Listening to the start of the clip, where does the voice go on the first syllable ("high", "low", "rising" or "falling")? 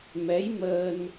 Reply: rising